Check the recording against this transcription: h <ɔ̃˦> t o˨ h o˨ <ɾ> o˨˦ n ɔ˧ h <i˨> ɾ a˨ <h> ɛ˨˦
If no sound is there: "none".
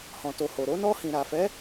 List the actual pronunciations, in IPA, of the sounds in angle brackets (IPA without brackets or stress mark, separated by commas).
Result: ɔ̃˨, ɾ, ĩ˨, f